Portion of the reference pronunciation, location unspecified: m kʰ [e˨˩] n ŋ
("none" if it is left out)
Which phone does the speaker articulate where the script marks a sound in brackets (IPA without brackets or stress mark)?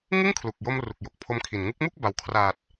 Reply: i˨˩